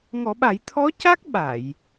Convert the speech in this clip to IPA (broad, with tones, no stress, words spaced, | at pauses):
ŋɔ˨˩˦ɓa˨˩˦j t̪ʰɔ˧˥ca˦˥k̚ ɓa˨˩˨j